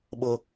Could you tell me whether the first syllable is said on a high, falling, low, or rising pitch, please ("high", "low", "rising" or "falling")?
high